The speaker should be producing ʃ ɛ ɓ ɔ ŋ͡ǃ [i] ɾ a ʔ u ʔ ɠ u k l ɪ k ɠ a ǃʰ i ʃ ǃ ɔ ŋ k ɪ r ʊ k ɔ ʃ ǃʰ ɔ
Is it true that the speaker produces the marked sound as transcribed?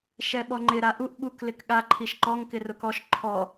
no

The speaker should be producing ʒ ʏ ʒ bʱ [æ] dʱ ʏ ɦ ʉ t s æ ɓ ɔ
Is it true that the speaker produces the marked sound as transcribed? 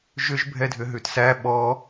no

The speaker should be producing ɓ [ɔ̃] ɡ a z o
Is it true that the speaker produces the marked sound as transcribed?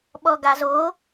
no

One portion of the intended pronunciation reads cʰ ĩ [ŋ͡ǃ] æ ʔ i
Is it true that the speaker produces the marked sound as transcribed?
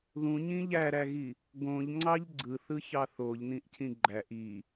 no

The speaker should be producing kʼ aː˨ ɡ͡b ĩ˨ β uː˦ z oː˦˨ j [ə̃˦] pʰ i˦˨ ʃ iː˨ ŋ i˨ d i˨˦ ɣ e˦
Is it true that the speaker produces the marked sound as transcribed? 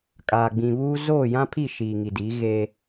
no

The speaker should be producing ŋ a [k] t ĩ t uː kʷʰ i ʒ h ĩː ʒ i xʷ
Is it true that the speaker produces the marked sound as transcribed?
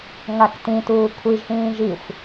yes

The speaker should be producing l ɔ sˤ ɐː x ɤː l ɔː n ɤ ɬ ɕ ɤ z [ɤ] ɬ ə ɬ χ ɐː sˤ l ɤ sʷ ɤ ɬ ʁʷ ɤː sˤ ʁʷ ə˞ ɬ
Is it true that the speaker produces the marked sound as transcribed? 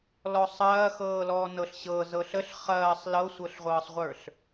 yes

